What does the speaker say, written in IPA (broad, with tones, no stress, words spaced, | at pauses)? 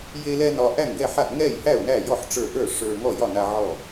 je˧lɛ˧ nɒ˧ ʔæ˥˩ŋɡɛ˥˩ħa˥˩ʔ ŋɛ˥˩jhæ˥˩ʊ̯ næ˥˩jɔ˥˩ħ ʈ͡ʂə˞˥˩ ʔə˞˥˩ ʂə˞˧ ŋɔ˥˩jɒ˥˩na˧ ʕɔ˥˩